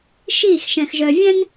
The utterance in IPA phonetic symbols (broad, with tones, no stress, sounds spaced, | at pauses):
ʃ iː˦˨ x ʃ ɛ̃˨ x ʒ œ˨ vʲ ɛ̃˦ ŋ